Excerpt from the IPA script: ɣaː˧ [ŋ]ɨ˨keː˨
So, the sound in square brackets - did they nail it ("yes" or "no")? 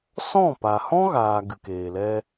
no